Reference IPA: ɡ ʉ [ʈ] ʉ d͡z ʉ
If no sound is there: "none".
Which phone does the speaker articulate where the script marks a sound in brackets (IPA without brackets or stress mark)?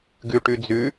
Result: ʈ